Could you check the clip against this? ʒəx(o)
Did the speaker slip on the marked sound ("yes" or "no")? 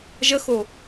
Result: no